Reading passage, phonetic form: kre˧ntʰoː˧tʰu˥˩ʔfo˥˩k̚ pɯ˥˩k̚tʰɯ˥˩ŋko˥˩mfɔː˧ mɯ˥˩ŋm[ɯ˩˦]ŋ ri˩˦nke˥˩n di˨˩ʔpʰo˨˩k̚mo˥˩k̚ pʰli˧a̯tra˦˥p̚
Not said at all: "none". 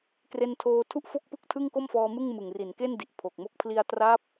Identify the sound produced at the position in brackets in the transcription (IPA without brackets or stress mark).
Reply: ɯ˨˩